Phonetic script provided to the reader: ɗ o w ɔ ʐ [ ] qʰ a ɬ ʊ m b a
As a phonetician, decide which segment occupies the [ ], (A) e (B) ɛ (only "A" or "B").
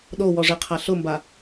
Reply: A